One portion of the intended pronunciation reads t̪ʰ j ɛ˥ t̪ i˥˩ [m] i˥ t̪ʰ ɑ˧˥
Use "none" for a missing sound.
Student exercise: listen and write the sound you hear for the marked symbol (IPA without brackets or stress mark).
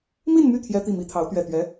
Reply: m